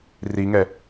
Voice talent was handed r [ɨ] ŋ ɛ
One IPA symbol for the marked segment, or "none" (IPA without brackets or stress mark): i